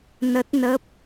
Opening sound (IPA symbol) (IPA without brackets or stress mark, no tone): n